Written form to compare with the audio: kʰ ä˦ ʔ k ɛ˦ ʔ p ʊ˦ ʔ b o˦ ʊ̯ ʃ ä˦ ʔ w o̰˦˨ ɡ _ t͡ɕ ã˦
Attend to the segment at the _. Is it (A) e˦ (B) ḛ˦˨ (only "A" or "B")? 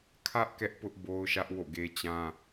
A